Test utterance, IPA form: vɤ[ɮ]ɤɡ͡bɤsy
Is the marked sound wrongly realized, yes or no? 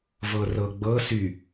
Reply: yes